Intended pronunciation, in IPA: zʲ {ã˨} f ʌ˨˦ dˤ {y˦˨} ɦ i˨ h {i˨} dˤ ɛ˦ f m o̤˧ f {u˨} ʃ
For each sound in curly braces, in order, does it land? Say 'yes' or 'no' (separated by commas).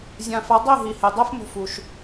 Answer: yes, no, no, yes